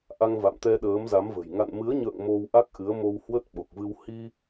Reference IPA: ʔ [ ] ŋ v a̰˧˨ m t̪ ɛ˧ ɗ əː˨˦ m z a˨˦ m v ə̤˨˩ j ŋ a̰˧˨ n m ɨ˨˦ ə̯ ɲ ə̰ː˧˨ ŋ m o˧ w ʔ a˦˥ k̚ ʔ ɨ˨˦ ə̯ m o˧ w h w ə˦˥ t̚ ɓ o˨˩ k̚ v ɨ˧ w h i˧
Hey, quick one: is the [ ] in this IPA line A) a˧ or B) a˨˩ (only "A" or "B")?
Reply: A